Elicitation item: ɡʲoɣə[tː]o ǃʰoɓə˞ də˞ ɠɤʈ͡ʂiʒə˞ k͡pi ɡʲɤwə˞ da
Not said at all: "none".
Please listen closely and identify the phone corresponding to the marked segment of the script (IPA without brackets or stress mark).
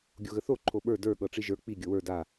θ